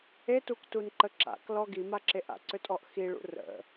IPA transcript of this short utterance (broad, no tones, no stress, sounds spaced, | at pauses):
e t u k t u n ǃ ə ǁ a̰ k l ɔ ɡ i m a ǁ e ʔ a̰ ǀ ø tʼ ɔ ʔ x i ɭ ṵ r ə̰